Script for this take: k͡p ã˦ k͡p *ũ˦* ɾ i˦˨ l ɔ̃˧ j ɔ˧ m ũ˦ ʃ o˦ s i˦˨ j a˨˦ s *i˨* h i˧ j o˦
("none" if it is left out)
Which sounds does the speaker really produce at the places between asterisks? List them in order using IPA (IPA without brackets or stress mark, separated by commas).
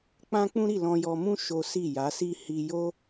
ũ˦, i˦